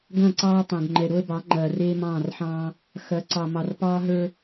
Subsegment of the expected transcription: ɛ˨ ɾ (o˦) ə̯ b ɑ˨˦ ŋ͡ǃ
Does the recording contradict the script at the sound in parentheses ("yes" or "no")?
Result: no